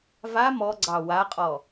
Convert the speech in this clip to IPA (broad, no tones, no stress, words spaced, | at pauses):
va mɔɡ͡ǀɑ waqʼɔ